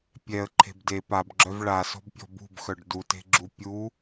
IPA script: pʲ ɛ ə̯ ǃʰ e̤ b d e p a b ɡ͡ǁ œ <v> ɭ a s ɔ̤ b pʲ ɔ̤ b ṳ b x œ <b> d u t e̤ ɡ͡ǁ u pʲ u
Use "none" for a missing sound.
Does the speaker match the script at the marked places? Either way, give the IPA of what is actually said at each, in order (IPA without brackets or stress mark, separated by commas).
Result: v, ɖ